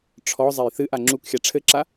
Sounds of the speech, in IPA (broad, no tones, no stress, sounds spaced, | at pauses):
ʈ͡ʂʰ ɔ zˤ ɛ j θ ɨ ʔ a ŋ͡ǁ u k xʲ a ʈ͡ʂʰ ɘ ǁ a